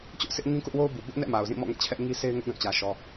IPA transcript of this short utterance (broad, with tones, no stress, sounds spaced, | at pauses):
t͡ɕ ʊ˦ ʔ sʰ ɪ˦ ʔ ŋ ĩ˦ k ʊ˦ ʔ w o˦ ʊ̯ b u˨ b ʊ˦ ʔ n ɛ̰˦˨ m a˨ ʊ̯ z ĩ˦˨ m ɔ̰˦˨ ŋ ɛ̰˦˨ t͡ɕʰ ɛ˦ ʔ ŋ i˦ sʰ e˦ ɪ̯ ŋ ʊ˦ ʔ ɡ ã˦˨ t͡ɕ ä˦ ʃ ɔ˦